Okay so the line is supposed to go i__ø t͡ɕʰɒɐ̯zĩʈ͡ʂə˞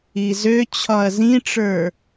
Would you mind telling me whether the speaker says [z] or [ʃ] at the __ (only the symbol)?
z